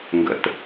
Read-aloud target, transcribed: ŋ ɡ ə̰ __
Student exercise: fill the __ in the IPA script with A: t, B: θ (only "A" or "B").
A